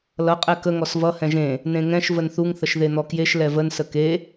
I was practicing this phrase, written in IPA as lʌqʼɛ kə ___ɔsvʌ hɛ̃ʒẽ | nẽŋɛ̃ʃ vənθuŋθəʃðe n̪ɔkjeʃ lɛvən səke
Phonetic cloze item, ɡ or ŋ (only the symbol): ŋ